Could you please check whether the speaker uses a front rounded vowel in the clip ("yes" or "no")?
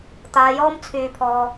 yes